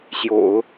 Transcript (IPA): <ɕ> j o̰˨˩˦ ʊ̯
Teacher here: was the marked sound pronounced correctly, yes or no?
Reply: yes